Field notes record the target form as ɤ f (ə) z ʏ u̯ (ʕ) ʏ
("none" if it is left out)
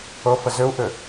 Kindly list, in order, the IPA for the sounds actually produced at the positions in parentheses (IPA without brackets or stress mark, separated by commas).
ə, ʔ